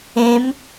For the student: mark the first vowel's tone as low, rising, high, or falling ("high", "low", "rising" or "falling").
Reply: rising